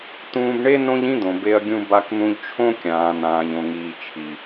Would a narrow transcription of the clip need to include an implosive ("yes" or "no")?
no